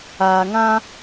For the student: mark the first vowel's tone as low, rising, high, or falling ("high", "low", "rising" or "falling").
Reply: low